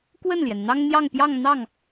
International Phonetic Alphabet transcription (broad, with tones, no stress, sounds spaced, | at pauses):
k w ə˥˩ n l j ɛ˩ n n̪ ɑ˥ ŋ n̪ j ɑ˥˧ ŋ p j ɑ˥˧ ŋ n̪ ɑ˥˩ ŋ